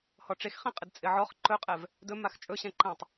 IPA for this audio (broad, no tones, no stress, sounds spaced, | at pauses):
h ɔ ʈ͡ʂ e x χ ẽ qʼ ɪ d t͡sʼ ɪ ʕ ɔ χ ǃ ɵ qʼ ɛ v | d ɵ m a x t͡ʃʼ ɵ ɕ ɛ̃ ǃ ɛ̃ tˤ